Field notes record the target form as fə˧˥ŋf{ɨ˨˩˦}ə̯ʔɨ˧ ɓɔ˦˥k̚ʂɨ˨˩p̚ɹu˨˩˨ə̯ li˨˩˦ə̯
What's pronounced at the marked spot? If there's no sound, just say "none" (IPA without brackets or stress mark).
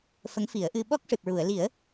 i˨˩˦